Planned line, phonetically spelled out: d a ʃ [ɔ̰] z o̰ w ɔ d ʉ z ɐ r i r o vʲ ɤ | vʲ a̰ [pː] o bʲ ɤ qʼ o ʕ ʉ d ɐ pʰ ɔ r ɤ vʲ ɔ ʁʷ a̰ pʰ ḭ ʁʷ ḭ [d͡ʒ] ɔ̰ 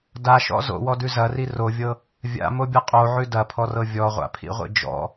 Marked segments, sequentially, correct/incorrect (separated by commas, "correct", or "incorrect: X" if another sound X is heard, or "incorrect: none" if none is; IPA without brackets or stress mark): correct, incorrect: m, correct